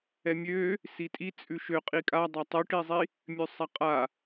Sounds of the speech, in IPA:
ɛ mʲ ø | s i tʼ i t͡sʼ ʉ ʃ ø qʼ i kʼ a dˤ a tˤ ʉ ʈ i zˤ i | mʲ ʉ sˤ a qʼ a

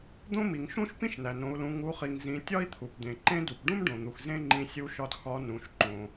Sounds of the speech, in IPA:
d̪ õ˥ m i˩ ŋ ʃ ũ˥ ʃ p ĩ˥ ʃ n æ˩ n õ˩˧ u̯ l ũ˩˧ ŋ u˩˧ χ i˩ ŋ z ĩ˩˧ tʲ ɒ˥ i̯ t̪ʰ u˩ p d̪ ẽ˩ ǃ ẽ˥ d u˩ p ɖ ũ˥ m ɖ õ˩ n̪ u˩ x z ẽ˥ ŋ͡ǃ ĩ˧ sʲ u˧˥ ʃ ɒ˧ d x ɒ˧˥ n ũ˩˧ ʃ ǃ õ˩

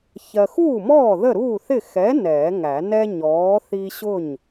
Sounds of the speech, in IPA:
ç ɜ˨ x uː˥˩ m ɔː˥˩ ð ə˥˩ ɾ uː˥˩ θ ɪ˥˩ x ɛ˨˥ n ɛː˨˩˦ ŋ æ˨˩˦ n ɛ˦ ɲ ɔː˨˥ θ i˦ ɕ ʊ˥˩ ɲ

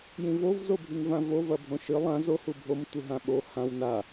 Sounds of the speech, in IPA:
j ĩ v o v z o bʱ i ŋ v ã v o v ɐ bʱ õ ʃ ɨ lˠ ã z o h u bʱ o m tʷ ɨ ɦ ã ɓ o h ã w n a

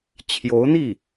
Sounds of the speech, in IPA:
t͡ɕʰ j o˧˥ ʊ̯ n̪ i˥˩

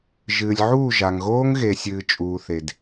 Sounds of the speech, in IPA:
ʒ ɨː˨ lʲ ʕ uː˦˨ ʒ a˨ ŋ ɣ oː˦ ŋ ɣ e˨ sʲ ɨː˨ t͡ʃʼ uː˨ θ e˨ d

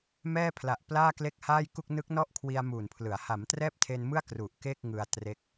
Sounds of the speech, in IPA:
m ɛː˥˩ pʰ l a˨˩ ʔ p l aː˥˩ k l e˥˩ k̚ h aː˥˩ j k u˥˩ k̚ n ɯ˦˥ k̚ n ɔ˥˩ ʔ kʰ w i˧ a̯ m uː˨˩ n pʰ l ɯ˩˦ a̯ h a˩˦ m t r ɛː˥˩ p̚ tʰ e˧ n m ɯ˥˩ a̯ k r u˨˩ ʔ k e˥˩ k̚ ŋ ɯ˧ a̯ t r e˦˥ k̚

